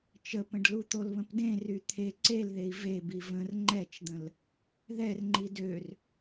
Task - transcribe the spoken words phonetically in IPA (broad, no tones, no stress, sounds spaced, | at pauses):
t͡ʃ ə p ə̃ ɖ l u t̪ o l β ə̃ p d ẽ r y t̪ʰ e ǀ e l ð e i̯ v e b i v ə̃ r ŋ͡ǃ ɛ t͡ʃ d̪ ə̃ l | ð ɛ r ŋ͡ǃ i d ø r